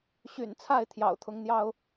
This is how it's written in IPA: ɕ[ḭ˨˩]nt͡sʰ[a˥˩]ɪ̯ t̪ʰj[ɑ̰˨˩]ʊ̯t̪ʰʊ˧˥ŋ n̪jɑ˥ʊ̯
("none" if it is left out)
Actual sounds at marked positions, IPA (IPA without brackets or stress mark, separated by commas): y̰˨˩, a˥˩, ɑ̰˨˩